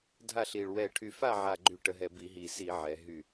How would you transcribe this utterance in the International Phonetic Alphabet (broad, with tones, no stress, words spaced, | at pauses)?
dʱa˦˨ɬi˨˩ɭ wɛ˨˩ʈʰy˨˩fa˦˨ʕa˨˩ ɡ͡ǃy˧˩˧ʈə˩˧ɦɛ˨˩ bi˧˩˧ɦi˨˩si˧˩˧ʕɛ˩˧ ɦy˦˨